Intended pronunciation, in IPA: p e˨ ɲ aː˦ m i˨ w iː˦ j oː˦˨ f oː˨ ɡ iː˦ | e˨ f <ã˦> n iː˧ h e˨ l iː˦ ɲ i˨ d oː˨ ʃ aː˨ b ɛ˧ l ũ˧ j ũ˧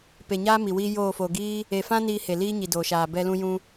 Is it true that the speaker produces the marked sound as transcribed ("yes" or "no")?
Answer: yes